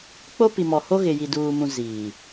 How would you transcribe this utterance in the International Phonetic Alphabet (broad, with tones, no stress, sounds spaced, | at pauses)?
k͡p o˦ p i˨ m ɔ˨ h o˦ ɣ ɪ˨ j i˨ d uː˨ m ũ˨ z iː˨